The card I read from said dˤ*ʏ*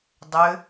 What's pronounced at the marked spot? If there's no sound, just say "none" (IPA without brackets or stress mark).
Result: ʏ